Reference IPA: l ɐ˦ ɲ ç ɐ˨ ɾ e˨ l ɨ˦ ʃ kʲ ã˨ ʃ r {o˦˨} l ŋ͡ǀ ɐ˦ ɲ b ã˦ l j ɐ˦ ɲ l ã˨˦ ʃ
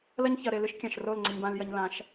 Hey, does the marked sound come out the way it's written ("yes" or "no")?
yes